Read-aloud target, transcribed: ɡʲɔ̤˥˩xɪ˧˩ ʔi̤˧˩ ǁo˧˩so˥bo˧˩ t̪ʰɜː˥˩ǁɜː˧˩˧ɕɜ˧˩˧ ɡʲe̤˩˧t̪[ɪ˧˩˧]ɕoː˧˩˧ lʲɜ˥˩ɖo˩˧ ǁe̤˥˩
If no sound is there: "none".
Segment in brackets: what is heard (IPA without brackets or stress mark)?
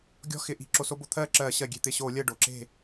ɪ˧˩